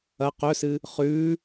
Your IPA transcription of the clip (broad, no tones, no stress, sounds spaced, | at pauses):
ɐ q ɵ s ɨ | χ ʉː